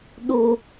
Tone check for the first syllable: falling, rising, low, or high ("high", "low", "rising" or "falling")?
high